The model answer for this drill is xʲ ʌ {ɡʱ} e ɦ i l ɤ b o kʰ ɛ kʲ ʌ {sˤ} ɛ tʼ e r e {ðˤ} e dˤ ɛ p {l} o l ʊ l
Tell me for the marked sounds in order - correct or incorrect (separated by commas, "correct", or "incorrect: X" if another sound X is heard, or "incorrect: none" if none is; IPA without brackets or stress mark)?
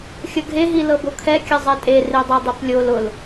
correct, incorrect: zˤ, incorrect: dˤ, incorrect: lʲ